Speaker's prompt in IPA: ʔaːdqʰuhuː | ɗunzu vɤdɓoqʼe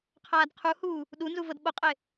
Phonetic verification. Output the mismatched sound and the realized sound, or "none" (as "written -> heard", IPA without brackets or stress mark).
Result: ʔ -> qʰ